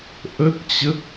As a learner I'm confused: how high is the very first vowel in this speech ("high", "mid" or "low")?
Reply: mid